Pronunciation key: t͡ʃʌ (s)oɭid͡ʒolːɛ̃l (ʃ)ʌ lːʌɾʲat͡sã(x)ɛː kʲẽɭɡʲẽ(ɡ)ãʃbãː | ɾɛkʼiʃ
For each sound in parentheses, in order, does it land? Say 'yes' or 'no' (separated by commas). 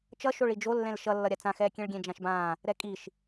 no, yes, yes, no